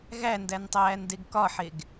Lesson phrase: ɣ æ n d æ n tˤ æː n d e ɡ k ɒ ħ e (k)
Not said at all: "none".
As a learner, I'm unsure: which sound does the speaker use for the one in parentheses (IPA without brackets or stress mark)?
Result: ɡ